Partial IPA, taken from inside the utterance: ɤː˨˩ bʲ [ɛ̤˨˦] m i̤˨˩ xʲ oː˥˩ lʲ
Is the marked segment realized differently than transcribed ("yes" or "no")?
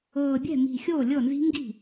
yes